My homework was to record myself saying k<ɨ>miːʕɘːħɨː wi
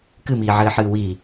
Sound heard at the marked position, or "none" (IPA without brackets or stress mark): ɨ